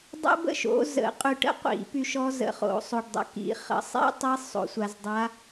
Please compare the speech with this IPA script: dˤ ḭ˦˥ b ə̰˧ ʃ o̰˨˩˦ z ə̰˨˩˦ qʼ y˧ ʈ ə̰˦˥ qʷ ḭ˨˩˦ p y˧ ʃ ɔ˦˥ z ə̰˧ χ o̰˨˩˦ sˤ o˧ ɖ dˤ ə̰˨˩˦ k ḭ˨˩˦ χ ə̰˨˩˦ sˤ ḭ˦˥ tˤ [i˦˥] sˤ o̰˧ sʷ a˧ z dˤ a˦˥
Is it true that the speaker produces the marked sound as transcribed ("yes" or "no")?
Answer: yes